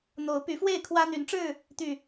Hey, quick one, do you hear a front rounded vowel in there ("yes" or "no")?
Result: yes